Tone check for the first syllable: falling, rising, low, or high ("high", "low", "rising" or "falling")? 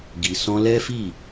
low